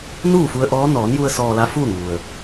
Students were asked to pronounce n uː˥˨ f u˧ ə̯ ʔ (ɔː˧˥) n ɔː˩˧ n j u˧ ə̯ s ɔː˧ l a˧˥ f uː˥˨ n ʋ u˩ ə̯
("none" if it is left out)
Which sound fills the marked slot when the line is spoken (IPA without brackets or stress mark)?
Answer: ɔː˧˥